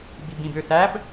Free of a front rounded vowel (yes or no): no